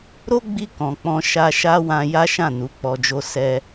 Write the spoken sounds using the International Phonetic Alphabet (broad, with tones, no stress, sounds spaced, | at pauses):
ɾ o˦ ɡ͡b i˧ k ɔ̃˨ k͡p ɔ̃˧ ʃ a˧ ʃ a˦ w ã˧ j a˦ ʃ ã˦˨ n u˨˦ k͡p ɔ˧ d͡ʒ o˦ s ɛ˧